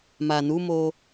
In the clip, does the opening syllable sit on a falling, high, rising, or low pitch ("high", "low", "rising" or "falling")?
low